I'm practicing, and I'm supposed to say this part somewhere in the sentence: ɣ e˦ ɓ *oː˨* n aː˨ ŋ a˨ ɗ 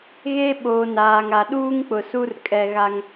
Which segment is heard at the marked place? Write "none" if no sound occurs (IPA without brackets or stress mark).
oː˨